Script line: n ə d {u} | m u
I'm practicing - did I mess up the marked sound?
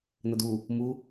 no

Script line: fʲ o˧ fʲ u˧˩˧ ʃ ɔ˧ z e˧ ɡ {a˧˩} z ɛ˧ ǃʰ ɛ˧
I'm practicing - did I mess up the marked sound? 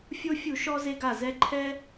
no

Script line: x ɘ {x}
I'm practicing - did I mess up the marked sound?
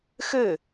yes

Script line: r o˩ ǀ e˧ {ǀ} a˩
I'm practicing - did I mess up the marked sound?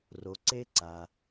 no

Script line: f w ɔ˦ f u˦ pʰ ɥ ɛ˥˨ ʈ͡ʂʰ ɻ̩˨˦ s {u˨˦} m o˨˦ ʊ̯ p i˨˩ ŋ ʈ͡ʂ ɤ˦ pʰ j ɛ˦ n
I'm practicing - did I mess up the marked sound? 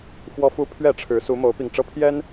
no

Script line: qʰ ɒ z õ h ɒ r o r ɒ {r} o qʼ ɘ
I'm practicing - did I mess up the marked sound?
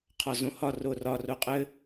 no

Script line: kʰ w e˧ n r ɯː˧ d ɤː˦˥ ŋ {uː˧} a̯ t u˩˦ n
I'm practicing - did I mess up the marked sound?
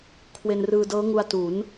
yes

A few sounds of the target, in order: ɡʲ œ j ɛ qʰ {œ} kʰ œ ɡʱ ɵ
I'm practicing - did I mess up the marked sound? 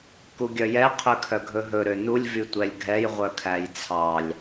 yes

